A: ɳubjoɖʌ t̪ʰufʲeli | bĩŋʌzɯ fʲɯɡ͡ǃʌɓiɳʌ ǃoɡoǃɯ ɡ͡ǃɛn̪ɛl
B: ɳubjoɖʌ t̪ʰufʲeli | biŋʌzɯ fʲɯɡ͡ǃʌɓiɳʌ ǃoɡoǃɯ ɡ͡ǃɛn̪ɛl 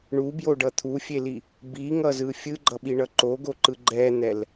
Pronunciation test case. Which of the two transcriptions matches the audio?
B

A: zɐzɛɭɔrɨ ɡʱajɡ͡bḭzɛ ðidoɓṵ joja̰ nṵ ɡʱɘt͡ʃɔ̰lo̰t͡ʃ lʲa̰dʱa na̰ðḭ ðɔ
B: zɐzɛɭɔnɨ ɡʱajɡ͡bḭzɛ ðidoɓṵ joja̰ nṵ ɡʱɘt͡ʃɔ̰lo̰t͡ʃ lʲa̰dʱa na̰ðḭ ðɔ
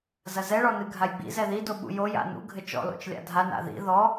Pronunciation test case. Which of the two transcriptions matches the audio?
B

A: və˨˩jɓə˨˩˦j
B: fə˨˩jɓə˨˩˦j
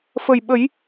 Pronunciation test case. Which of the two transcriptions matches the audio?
B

